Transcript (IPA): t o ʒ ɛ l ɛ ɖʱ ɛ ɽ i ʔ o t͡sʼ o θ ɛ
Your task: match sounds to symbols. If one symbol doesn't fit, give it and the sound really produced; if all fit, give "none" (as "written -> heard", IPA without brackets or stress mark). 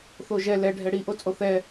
t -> θ